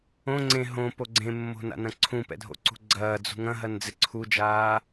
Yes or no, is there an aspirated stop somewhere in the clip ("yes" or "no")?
yes